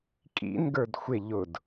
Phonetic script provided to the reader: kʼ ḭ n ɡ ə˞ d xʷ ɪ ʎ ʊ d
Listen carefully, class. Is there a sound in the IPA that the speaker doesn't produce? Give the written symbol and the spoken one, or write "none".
none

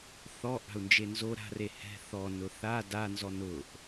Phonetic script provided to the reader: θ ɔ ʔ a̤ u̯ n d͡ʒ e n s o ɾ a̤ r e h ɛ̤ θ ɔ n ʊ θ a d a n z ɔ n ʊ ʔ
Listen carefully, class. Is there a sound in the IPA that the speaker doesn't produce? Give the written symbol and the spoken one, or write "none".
s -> z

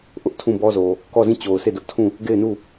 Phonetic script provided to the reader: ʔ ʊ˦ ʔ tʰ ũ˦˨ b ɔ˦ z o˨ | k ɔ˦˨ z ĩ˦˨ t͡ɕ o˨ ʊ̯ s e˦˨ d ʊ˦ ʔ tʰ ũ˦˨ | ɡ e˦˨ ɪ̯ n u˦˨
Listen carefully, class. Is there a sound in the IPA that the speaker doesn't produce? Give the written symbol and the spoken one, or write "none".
none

